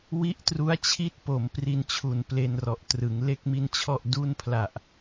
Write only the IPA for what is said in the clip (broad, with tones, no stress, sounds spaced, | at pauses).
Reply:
w i˦˥ ʔ t r u˦˥ a̯ t͡ɕʰ i˥˩ t̚ p o˩˦ m p r i˧ n t͡ɕʰ u˨˩ n p l e˧ n r ɔ˨˩ ʔ t r ɯ˩˦ ŋ l e˥˩ k̚ m i˥˩ n t͡ɕʰ ɔ˥˩ ʔ d u˥˩ n pʰ l a˨˩ ʔ